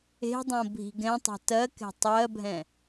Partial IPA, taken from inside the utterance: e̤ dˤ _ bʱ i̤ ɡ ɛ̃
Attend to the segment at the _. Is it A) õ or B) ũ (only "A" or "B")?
A